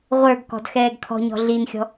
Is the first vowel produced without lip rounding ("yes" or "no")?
yes